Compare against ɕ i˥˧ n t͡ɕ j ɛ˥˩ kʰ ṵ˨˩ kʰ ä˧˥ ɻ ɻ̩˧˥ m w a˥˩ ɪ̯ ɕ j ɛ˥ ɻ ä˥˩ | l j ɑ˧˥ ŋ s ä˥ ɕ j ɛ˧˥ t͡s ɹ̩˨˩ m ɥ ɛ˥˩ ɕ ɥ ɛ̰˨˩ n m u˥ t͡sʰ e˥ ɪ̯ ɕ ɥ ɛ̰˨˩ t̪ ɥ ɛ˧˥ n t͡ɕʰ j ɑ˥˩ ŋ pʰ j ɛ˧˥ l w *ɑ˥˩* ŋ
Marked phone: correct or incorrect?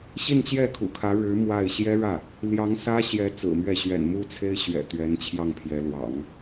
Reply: incorrect